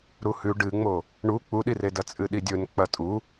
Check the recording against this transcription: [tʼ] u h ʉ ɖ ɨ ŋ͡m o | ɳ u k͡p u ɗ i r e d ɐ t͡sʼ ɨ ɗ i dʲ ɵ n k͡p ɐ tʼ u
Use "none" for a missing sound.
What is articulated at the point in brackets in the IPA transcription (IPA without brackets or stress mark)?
ɾ